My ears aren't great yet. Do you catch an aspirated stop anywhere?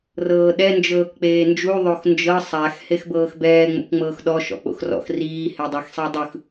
no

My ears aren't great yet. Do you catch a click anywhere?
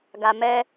no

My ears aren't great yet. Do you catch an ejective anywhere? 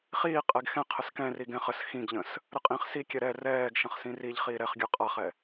yes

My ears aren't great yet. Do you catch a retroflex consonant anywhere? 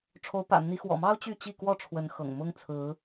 yes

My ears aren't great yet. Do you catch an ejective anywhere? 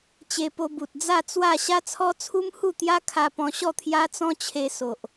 no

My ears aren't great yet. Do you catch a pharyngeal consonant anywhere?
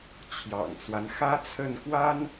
no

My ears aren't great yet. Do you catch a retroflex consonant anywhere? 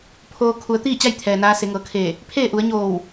no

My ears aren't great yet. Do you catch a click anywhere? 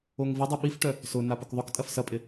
no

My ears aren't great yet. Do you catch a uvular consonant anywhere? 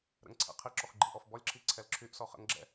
yes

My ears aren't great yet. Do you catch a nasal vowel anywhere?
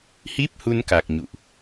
no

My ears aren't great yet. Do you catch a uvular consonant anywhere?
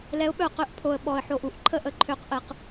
yes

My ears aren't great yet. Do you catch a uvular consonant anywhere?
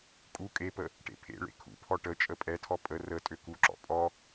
no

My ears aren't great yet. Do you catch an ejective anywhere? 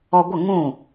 no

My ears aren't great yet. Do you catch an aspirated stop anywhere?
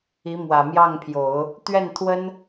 yes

